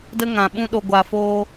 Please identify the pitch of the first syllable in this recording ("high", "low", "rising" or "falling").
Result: high